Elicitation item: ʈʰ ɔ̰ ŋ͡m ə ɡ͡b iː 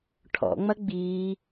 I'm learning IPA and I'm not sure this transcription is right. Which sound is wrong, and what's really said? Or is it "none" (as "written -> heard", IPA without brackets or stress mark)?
ə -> ɐ